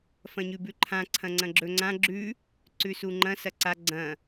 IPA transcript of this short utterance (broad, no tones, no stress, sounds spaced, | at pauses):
f ɐ̃ ɲ ʉ b ʉ ǃʰ ã ǀʰ ɐ̃ ŋ͡ǀ ɐ̃ ɡ͡ǁ ɵ ŋ͡ǀ ã ɡ͡ǁ ʉ | ǀ ʉ s u ŋ͡ǃ ɐ̃ s ɐ ǀ a ɡ͡ǀ ɐ̃